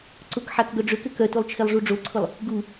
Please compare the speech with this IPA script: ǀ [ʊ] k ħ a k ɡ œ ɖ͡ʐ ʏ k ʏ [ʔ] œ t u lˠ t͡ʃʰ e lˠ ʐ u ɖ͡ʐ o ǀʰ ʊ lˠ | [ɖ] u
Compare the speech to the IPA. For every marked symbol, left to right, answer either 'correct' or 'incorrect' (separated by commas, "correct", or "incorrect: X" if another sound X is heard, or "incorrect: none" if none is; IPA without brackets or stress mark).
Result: correct, incorrect: k, incorrect: ɡ